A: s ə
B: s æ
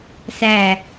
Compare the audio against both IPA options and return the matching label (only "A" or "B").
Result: B